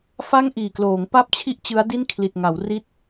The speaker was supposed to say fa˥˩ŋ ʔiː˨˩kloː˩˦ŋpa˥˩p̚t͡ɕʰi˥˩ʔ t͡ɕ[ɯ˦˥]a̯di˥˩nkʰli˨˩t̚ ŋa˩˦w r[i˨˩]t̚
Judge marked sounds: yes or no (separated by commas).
yes, no